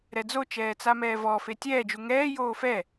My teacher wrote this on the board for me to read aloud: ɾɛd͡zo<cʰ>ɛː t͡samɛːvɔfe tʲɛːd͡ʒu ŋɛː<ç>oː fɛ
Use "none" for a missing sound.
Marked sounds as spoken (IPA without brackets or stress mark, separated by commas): t͡ʃ, j